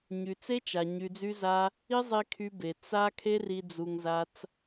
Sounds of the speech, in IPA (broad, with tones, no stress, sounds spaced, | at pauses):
ɲ y˨ t͡s e˦ t͡ʃ a˨ ɲ y˨ d͡z y˧ z a˧ | i˦ zˤ i˧ kʰ y˧ b e˨ t͡s a˧ kʰ e˦ r i˧ d͡z u˧ ŋ z a˦ t͡s